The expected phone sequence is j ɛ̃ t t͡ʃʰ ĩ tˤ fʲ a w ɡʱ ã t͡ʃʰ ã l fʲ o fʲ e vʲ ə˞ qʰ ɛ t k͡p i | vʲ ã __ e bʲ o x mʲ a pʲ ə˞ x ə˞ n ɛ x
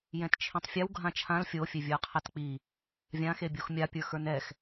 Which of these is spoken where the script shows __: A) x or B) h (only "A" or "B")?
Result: A